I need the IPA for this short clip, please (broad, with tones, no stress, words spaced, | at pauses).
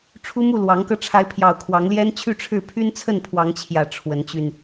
ʈ͡ʂʰu˦mu˥˨ lwɑ˨˦ŋkɤ˧ ʈ͡ʂʰa˨˦ɪ̯pʰjɑ˨˩ʊ̯ kʰwɑ˨˦ŋljɛ˦n t͡ɕʰy˥˨ʈ͡ʂʰɻ̩˥˨ pʰy˦nt͡sʰə˥˨npʰwɑ˨˦ŋt͡ɕʰjä˨˩ ʈ͡ʂʰwə˨˦nt͡ɕy˧n